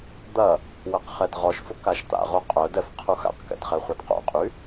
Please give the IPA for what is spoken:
d̪ɐ | wɐqχɛdʁɔʃfʊk aʃt̪a̰ʁo qʼœdɛf qʰuxa̰qkɛ̰d χɛχʷɐdqo̰qʼy

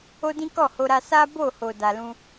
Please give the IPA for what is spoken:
o˦dĩ˦ kɔ˦˨ho˧ɾa˧ sa˦bo˦˨ ho˨da˨lũ˧

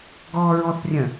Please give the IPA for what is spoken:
ɡɔɹɔθrʲə̃

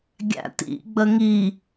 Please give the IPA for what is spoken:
ɡʲæ̰tḭ ɡ͡bəŋi

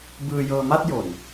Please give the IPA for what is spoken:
bɯː˧jɤː˧ma˥˩t̚jo˨˩n

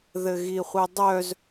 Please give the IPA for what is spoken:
ðɘɣiχʷɘdˤœz

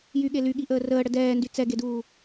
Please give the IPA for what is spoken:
jyɠe lyɠiʔəː rəːɽə dɛːndy t͡sɛɡeduː

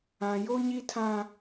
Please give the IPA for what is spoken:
ã˦ jo˦ɲi˦tʰã˦

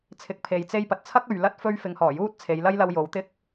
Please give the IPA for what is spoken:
t͡sʰɪ˨k̚pʰe˨j t͡se˥jpɐ˨t̚ t͡sʰɐ˥k̚ɵ˨ɥ lɐ˥t̚fɵ˥ɥ fɪ˨˧ŋhɔː˨˩juː˥t̚ t͡sʰe˨˧jlɐ˥jlɐ˧w jo˨˥wt̪ɪ˥k̚

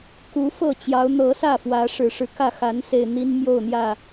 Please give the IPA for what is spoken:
ku˨˦ fɤ˥˨t͡ɕjɑ˨˦ʊ̯ n̪ɤ˨˦sä˥˨ fwä˨˦ʂɻ̩˨˩ʂɻ̩˨˦kä˥˨ xa˨˦n se˨˩ɪ̯ n̪i˦nmjo˥˨ʊ̯n̪jä˥˨

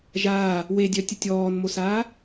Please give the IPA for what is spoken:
ʒaː | wedʲœtʲətʲ ɔːnmosaː

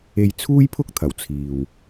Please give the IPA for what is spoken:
e˧jt͡sʰuː˥jpʰʊ˥k̚t̪ʰɐ˨˩w t͡sʰiː˨w

